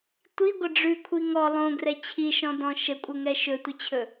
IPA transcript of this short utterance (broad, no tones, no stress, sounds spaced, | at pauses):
tʷ i ɡʷ ə ɖ͡ʐ ʉ kʷʰ i ŋ ɔ lˠ õ ɡ r ɛ t͡ɕʰ i ʃ ɔ̃ d ɔ̃ ʃ ə kʷʼ ɘ ŋ ɛ ʃ ɵ tʷ ə t͡ɕʰ ɵ